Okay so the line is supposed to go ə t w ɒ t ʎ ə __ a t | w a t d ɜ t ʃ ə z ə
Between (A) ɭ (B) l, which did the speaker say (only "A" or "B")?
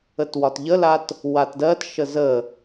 B